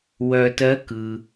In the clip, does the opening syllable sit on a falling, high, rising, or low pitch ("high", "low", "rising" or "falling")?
low